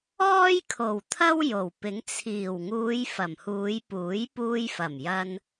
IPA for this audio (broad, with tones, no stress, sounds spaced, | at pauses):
ɔː˥ j kʰ o˨˩ w t̪ʰ ɐ˥ w j o˨˩ w p ɪ˨˥ ŋ t͡sʰ iː˨˩ w ŋ uː˨˧ j f ɐ˨˩ m h uː˨˧ j p uː˨˥ j p uː˧ j f ɐ˨˩ m j ɐ˧ n